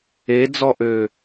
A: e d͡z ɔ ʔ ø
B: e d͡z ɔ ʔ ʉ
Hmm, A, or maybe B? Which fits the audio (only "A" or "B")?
A